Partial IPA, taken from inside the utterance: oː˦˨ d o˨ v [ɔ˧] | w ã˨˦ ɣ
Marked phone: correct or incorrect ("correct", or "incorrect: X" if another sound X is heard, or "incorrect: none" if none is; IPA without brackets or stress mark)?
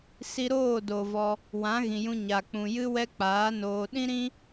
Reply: correct